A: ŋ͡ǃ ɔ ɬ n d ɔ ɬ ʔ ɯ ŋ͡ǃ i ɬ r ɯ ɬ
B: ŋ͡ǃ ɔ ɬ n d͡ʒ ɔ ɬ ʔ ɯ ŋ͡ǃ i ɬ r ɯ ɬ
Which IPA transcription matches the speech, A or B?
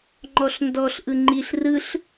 A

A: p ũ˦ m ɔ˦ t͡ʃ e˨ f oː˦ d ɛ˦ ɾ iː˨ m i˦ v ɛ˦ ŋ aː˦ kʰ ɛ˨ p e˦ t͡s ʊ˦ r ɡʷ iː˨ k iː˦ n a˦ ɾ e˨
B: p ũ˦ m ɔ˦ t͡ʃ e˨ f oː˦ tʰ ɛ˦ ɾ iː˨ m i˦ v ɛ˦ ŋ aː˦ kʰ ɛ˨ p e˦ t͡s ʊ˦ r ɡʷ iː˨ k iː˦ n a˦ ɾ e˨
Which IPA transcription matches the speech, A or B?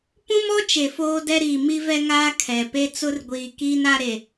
A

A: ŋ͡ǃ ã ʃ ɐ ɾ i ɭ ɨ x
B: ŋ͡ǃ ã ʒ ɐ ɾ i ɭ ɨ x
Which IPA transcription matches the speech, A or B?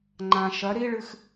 A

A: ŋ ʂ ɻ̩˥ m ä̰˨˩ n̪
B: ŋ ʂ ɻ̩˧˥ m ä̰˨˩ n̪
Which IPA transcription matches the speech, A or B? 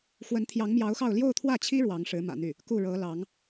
B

